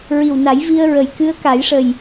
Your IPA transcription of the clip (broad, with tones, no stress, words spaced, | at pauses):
ɹi˨˩wna˨˩˦jvi˧ə̯ɹə˨˩j kɨ˧˥ə̯ka˨˩˦jʂə˨˩j